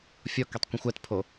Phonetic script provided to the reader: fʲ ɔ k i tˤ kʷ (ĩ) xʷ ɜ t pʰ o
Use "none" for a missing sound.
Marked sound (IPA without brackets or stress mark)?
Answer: ĩ